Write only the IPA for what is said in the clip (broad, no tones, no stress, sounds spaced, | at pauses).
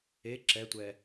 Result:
e ǁ ɛ tʷ ɛ